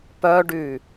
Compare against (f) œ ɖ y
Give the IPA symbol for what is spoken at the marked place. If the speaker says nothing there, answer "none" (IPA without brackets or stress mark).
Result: p